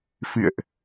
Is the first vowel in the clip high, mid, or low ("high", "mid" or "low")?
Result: high